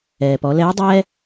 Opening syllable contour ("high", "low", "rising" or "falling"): low